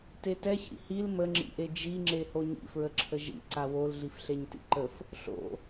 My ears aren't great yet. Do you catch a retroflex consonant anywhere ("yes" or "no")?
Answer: no